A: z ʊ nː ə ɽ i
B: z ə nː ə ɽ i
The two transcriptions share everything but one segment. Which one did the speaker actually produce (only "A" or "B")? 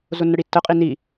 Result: A